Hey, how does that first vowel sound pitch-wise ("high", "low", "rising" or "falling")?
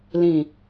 low